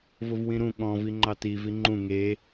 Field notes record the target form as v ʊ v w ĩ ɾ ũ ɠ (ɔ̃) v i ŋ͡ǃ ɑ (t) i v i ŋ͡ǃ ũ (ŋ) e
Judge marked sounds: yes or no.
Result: yes, yes, yes

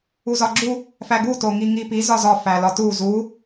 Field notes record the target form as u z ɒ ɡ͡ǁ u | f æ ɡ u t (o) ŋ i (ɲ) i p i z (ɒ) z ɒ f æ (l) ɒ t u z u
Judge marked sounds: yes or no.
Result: yes, no, yes, yes

